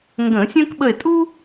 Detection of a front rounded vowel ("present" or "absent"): absent